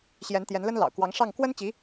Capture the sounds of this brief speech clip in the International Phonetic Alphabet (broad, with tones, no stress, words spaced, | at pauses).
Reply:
ɕjɛ˧˥nt̪jɛ˧˥nlə˥n lɑ̰˨˩ʊ̯kwɑ˧˥ŋʂɑ˥˩ŋ kwə˥nt͡ɕi˧˥